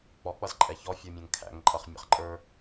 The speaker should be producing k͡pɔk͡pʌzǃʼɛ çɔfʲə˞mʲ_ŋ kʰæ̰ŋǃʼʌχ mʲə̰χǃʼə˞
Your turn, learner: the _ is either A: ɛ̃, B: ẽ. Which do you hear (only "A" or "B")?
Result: A